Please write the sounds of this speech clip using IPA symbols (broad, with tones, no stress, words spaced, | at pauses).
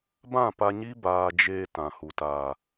bã˦˨pa˧ɲi˦ baː˧d͡ʒeː˧ tã˨hu˨ taː˨